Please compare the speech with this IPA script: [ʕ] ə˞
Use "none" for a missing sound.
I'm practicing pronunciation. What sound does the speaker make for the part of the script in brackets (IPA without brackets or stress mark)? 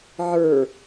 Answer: ʕ